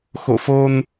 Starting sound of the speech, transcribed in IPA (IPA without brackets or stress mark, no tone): x